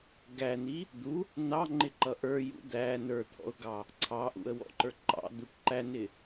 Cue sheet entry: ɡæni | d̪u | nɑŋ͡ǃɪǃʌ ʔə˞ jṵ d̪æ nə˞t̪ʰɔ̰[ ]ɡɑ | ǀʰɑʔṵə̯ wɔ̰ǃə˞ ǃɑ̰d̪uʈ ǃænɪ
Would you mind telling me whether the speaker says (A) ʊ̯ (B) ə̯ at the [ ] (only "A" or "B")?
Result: A